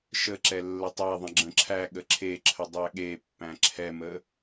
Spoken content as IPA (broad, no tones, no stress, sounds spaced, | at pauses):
ʃ ə ǁ ɛ lː ə tˤ æ ðˤ ə̃ ɡ͡ǁ ə̃ ǁʰ æ ɠ ə ǁʰ e ǁʰ ə dˤ æ ɠ e pː æ̃ ǁʰ ɛ m ə